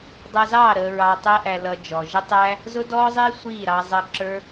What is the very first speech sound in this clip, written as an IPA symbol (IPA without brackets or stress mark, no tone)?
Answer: dˤ